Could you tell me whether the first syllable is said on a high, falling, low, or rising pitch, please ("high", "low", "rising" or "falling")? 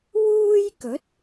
high